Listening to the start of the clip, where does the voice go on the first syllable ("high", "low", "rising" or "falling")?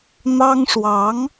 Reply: high